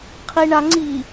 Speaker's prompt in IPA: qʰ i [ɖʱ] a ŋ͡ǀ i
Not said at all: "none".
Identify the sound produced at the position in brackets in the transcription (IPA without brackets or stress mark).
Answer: ɳ